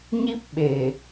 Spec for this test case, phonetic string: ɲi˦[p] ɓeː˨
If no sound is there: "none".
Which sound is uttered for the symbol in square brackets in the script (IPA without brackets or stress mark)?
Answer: p